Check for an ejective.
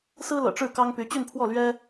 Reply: absent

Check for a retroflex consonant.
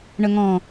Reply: present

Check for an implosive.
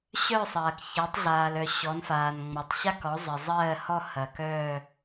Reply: absent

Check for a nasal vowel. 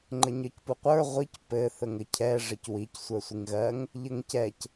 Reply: absent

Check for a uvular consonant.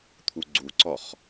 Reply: present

